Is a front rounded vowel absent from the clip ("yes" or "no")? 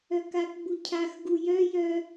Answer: no